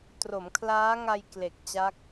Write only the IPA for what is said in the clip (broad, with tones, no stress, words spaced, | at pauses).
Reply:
tro˩˦mkʰlaː˦˥ŋa˧j kle˨˩k̚t͡ɕa˦˥k̚